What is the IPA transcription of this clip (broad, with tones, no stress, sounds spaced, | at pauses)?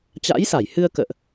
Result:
t͡ɕ a̰˧˥ j s a˧˩ j h ɨ˧ ə̯ k ə̰ː˧˨ ʔ